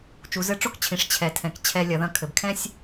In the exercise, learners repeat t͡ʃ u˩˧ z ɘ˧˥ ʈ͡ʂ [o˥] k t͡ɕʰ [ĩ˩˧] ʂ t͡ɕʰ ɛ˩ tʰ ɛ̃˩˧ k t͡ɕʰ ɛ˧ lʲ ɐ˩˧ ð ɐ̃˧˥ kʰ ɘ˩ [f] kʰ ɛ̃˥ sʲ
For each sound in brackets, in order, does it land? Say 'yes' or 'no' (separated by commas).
yes, yes, no